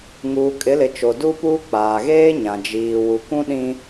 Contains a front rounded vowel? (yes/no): no